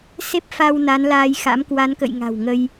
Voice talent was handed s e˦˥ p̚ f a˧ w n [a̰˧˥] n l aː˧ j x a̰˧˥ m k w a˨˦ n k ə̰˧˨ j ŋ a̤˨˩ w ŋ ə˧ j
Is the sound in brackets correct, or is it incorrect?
incorrect